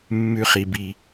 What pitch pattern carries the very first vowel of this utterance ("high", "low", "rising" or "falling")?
high